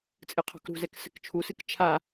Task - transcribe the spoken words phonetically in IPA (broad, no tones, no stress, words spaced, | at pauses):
t͡sʼɨqʰɔ̤kɾṳzɛk sɘkt͡ʃʰusɨk t͡ʃʰa